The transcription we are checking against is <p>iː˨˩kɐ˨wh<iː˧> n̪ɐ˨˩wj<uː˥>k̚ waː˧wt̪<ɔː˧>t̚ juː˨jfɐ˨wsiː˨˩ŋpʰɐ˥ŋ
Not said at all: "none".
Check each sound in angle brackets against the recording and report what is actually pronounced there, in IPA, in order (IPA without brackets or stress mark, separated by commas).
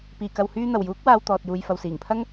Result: p, yː˧, uː˨˥, ɔː˨